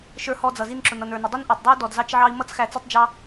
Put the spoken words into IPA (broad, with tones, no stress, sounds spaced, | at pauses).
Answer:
ʃ ə˞˧ h ɔ˧ d͡z ʌ˨ z i˧ n ǁ ʊ˨ n ʌ˨ n ə˞˨ n ɪ˨ dˤ ʊ˦ n ʔ ə˞˨ tˤ dˤ ɪ˦ u̯ d ɔ˨ d z ɑ˦ t͡ʃ ʕ ɑ˦ i̯ m ʌ˦ t͡s x æ˧ t͡s ʌ˦ tˤ d͡ʒ ɑ˦